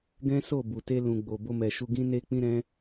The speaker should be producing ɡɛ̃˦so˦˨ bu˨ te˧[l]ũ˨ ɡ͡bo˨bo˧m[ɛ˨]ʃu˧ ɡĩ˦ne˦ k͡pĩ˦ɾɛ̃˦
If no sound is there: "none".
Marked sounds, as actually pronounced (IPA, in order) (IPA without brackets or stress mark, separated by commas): l, ɛ˨